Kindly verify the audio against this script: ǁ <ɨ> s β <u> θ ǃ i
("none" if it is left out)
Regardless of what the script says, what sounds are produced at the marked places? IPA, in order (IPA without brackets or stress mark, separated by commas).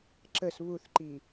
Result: ə, u